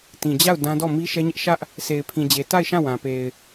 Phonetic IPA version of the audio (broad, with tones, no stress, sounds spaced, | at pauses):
t ĩ˨ d͡ʑ a˦˨ ʊ̯ d ã˦ d ɔ˦˨ m i˦ ʃ ɛ˦ ɲ ɪ˦ ʔ ʃ ä˦ ʔ | s e˨ ɪ̯ pʰ ĩ˨ d͡ʑ e˨ t a˦˨ ɪ̯ ʃ ã˦˨ w ã˨ p e˨ ɪ̯